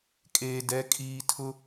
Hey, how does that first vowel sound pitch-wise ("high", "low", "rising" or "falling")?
low